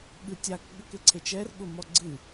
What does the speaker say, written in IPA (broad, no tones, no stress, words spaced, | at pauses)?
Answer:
ɠɨtʲak ɠəkeǀʰet͡ʃɛr ɠʊmɔɡ͡ǀɨ